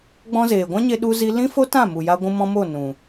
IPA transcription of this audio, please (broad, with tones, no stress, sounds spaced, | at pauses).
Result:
ɡ͡b ɔ̃˧ z eː˨ ɡʷ ã˦ ɲ e˦ ɗ u˦ z i˦ l ĩ˦ f o˦ t ã˦˨ m u˨ j a˧ ɡʷ ũ˧ m ɔ̃˧ m o˦˨ n ũ˨